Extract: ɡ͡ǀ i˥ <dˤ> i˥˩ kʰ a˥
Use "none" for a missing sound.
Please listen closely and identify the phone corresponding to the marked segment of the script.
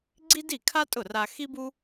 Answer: d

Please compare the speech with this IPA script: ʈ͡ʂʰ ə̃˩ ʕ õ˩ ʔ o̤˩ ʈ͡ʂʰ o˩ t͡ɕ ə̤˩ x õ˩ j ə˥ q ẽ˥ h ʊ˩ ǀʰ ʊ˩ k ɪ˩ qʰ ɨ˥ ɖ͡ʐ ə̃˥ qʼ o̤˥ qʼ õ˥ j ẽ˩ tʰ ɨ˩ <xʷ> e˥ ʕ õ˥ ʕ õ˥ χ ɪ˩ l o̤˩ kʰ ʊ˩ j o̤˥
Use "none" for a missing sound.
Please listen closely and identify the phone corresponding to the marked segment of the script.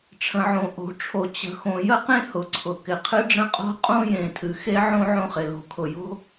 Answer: x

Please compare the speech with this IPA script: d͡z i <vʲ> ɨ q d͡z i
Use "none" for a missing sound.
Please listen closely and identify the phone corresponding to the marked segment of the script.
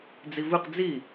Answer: v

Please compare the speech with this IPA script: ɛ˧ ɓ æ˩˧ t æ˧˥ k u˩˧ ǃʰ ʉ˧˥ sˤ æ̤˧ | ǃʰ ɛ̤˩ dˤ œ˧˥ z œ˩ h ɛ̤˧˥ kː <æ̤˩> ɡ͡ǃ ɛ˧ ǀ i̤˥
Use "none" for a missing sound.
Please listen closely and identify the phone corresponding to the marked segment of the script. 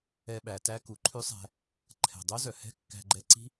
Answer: æ̤˧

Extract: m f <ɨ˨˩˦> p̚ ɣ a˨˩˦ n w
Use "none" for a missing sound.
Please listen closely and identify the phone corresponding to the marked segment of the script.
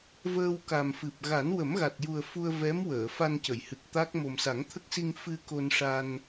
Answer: ɨ˨˩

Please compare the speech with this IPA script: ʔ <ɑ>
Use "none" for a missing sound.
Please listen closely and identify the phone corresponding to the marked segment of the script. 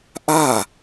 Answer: a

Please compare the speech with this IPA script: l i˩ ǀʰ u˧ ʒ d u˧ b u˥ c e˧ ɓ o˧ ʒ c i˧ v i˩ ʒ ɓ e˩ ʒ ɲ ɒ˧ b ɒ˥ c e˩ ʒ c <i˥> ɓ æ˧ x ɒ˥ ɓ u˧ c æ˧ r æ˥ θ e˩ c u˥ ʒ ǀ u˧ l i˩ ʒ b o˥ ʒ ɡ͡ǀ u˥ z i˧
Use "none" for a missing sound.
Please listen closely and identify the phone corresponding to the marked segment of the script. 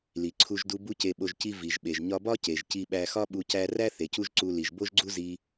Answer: i˧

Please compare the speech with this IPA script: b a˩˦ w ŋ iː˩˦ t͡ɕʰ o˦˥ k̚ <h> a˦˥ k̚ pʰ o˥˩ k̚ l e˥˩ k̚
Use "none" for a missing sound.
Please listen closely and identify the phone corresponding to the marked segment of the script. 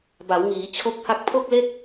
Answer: h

